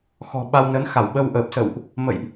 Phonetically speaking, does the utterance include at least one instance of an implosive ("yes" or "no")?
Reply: yes